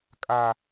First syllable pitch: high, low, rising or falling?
high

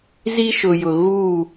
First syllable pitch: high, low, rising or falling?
high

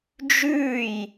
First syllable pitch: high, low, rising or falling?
falling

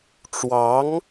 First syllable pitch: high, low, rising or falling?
rising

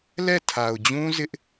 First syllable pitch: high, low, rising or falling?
falling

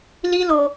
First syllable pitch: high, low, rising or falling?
high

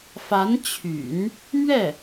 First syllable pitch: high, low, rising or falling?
rising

